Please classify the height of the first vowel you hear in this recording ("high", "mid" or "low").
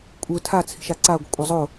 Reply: high